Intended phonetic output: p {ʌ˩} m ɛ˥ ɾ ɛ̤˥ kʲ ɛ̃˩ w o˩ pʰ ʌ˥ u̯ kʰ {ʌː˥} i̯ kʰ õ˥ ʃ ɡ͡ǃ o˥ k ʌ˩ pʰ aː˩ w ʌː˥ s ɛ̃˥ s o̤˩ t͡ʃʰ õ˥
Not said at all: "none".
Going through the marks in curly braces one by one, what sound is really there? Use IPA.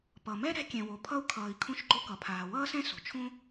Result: ʌ˩, ʌː˩

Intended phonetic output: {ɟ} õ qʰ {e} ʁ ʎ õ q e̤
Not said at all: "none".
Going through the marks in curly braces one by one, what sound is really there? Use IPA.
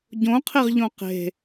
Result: ɟ, e

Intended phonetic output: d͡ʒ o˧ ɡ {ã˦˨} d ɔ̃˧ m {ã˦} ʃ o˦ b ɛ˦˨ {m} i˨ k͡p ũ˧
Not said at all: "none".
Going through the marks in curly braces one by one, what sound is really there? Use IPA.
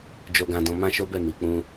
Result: ã˧, ã˦, m

